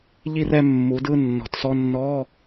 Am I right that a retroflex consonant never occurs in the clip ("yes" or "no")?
yes